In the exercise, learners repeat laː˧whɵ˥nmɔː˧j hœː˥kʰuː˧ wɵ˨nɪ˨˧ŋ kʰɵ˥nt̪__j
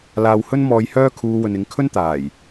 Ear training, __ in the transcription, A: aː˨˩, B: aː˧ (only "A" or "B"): A